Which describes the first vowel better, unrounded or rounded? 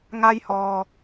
unrounded